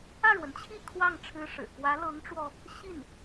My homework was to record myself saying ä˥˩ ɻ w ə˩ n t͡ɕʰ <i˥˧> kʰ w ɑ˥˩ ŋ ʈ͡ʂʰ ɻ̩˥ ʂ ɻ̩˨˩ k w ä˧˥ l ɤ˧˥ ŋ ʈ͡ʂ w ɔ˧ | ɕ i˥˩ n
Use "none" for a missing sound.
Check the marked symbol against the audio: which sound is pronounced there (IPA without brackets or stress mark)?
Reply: i˥˧